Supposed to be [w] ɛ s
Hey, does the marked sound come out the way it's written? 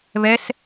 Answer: no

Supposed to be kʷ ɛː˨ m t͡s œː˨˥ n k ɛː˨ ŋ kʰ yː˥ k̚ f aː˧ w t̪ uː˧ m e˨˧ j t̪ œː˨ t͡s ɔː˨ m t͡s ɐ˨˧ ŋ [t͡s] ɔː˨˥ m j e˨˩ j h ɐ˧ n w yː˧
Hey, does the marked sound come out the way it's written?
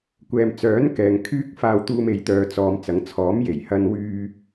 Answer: no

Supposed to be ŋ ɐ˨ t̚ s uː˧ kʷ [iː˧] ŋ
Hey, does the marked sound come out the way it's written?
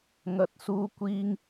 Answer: yes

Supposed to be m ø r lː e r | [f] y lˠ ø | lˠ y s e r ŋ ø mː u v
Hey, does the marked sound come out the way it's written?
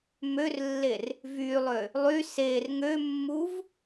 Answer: no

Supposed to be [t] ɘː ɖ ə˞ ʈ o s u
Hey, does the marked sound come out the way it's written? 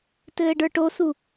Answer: yes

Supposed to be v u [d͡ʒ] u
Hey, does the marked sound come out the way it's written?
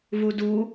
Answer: no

